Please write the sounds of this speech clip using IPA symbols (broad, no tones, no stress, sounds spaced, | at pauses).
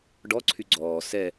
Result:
ɖ ɔ ǀʰ y ɡ͡ǀ ɔː s ɛ